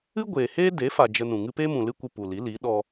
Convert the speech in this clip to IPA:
ɨ˦ ɡʷ eː˨ h eː˦ d e˨˦ f a˨ d͡ʒ ə˧ n ũ˨ ŋ ɨ˧ p eː˦ m ũ˨ l ɨ˦ kʷ ɨ˧ p u˨ l i˨˦ l i˨˦ ɗ ɔ˧

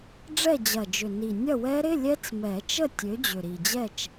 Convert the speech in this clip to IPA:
ɖ͡ʐ ɛ˥˨ d͡ʑ ɐ˨˩ d͡ʒ ʏ˨˩ n i˨˩ nʲ ɐ˥˨ w ɛ˦˥ ɾ ɪ˧˥˧ lʲ ɛ˦˥ t͡s m ɛ˨˩˦ t͡ʃ ə˥˨ tʲ ø˨˥ d͡ʑ ʏ˨˩ ɾ i˨˩ d͡ʑ ɛ˥˨ t͡ʃ

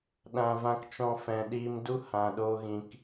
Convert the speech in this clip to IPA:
ɗ ã˦ v ã˦ k t͡ʃ ɔ̃˦ f ɛ̃˧ ɗ iː˧ m d u˦ h ã˨ ɗ o˧ ɣ ĩ˨ k

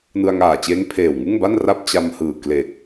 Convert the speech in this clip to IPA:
n ɯ˧ a̯ ŋ aː˨˩ t͡ɕ eː˦˥ ŋ pʰ eː˨˩ w ŋ ɯ˥˩ ŋ b a˥˩ n r a˥˩ p̚ t͡ɕ a˧ m h ɯː˨˩ k l e˨˩ k̚

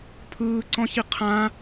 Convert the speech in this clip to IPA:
pʰ ɯː ǀ ɔ̃ ç i qʰ ã

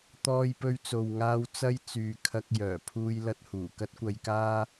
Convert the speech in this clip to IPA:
t̪ ɔː˧ j p ɵ˧ ɥ t͡s o˨ w ŋ aː˧ w t͡s ɐ˥ j t͡s yː˨ kʰ ɐ˧ k̚ j œː˨˩ pʰ uː˥ j l ɐ˥ t̚ h uː˨˩ k ɐ˥ t̚ kʷ ɐ˧ j k aː˥

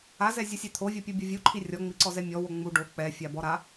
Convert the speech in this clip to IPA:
a z ɛ zʲ o sʲ ɛ t̪ʰ o vʲ ɔ pʲ u bʲ ɔ vʲ u ǃʰ i rʲ ɔ ŋ͡m i ǀ ɔ z ɛ mʲ ɔ w o ŋ͡m u ɖ o k͡p ɛ fʲ a b ɔ ɾ a

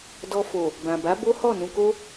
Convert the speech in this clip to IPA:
d ɔ˧ f o˨ | b ã˨ b a˨˦ b o˦ h ɔ˦˨ n ũ˧ k o˦

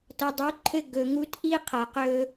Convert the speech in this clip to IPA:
t ʌ˨ dˤ u˨˦ ǃʰ ɘ˦ ɡ ɵ˨ ŋ u˧ t ʔ i˦ qʰ ʌ˨ q ɵ˧

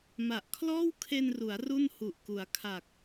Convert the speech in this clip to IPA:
m a˨˩ ʔ kʰ l ɔː˥˩ w kʰ e˧ n r u˩˦ a̯ r u˥˩ n h u˨˩ ʔ k u˩˦ a̯ kʰ a˨˩ k̚

